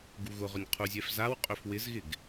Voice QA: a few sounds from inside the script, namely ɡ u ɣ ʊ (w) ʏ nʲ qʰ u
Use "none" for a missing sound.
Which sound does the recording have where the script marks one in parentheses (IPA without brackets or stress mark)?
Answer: ʁ